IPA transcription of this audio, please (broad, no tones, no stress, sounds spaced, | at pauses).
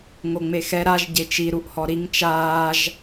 ŋ o ŋ͡m e x ɛ ɾ a ʒ ɟ e t͡ʃ i ɾ u ʔ h ɔ ɾ i ŋ t͡ʃ aː ʒ